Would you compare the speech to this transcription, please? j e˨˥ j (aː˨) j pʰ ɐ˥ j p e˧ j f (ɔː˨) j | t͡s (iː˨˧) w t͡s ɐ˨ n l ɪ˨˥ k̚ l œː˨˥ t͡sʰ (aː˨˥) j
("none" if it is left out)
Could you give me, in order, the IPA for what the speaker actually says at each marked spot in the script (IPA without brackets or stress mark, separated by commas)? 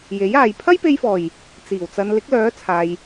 aː˨, ɔː˨˩, iː˨˩, aː˨